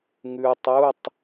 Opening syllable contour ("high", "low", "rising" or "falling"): low